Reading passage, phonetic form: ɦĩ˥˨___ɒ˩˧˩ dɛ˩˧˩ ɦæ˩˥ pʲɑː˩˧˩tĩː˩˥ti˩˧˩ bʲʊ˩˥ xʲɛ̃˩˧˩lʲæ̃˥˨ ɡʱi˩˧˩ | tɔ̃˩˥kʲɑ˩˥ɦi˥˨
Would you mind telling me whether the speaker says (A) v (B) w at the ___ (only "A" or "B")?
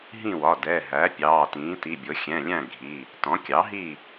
B